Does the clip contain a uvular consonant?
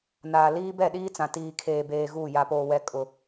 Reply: no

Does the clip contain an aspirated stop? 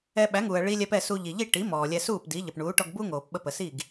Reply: no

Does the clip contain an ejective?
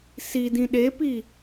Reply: no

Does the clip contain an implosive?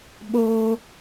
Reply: yes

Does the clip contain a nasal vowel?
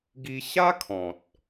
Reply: yes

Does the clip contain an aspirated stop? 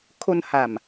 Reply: yes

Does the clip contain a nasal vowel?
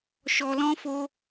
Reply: yes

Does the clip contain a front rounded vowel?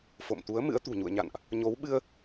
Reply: no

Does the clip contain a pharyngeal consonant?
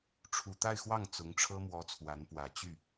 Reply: no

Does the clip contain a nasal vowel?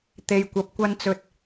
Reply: no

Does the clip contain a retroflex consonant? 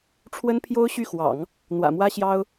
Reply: yes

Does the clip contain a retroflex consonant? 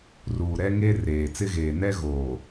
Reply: no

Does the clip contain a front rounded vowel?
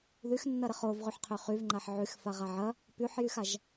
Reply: yes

